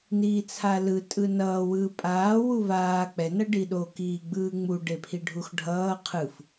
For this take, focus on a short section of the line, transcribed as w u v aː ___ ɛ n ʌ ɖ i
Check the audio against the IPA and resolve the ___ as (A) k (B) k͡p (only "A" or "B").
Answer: B